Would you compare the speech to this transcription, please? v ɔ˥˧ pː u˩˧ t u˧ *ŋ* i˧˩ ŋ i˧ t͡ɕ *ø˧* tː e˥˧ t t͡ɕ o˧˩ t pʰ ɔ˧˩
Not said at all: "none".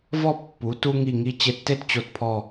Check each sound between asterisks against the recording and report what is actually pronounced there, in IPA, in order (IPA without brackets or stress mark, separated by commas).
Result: ŋ, e˧